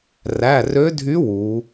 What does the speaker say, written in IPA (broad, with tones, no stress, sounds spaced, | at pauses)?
r æ˩˧˩ r ø˧˥ dʱ y˧˥ w u˩˧